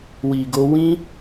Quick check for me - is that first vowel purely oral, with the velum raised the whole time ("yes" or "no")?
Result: yes